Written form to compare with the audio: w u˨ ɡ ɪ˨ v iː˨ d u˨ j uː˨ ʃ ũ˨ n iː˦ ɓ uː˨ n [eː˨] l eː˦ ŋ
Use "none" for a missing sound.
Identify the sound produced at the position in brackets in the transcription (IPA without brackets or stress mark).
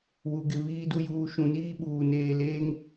eː˨